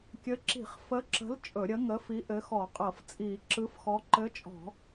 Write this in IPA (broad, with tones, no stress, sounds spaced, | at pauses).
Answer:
kʲ ɘ˨˥ ǁ i̤˧˩˧ χ f ə˨˥ ǁ ə̤˨˥ l t͡ʃʼ ɵ˧˩˧ ɾʲ ə˨˥ ŋ ə˨˥ f i˨˥ ʔ ɘ˨˥ x ɔ˧˩˧ qʼ ɤ˧˩˧ f t͡sʼ iː˧˩˧ ǁ ɯ˨˥ f x ɔ˨˥ ǃ ɘ˨˥ t͡ʃʼ ɔ̤˧˩˧